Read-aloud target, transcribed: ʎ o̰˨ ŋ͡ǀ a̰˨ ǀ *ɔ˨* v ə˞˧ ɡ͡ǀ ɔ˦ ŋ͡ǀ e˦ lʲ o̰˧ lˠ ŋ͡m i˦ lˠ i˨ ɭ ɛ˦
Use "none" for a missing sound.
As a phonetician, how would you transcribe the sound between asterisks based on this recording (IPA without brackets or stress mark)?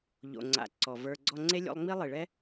ɔ˨